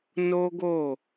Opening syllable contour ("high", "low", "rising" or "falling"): high